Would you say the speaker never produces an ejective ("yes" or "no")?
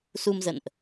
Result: yes